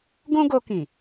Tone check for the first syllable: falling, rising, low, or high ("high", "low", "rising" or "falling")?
high